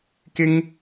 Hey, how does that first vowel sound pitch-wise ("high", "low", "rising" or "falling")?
high